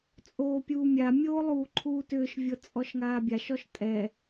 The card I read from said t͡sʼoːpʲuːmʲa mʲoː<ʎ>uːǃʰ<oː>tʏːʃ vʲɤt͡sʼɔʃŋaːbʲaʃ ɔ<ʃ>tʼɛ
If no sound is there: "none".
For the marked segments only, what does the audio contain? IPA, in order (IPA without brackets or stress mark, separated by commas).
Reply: lˠ, uː, ʃ